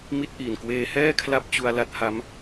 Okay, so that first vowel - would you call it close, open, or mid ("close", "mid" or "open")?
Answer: close